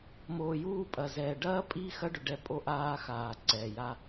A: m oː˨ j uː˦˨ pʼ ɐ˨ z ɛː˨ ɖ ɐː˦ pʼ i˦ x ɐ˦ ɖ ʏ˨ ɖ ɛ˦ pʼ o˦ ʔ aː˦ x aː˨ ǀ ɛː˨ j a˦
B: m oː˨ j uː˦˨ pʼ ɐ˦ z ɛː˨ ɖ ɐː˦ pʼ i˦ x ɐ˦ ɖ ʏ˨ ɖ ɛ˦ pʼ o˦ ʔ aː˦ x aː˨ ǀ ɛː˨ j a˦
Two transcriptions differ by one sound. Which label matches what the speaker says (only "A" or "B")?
A